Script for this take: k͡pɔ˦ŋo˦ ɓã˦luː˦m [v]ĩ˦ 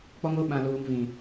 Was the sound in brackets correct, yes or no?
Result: yes